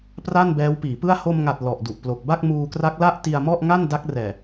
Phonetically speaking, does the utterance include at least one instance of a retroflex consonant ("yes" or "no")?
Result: no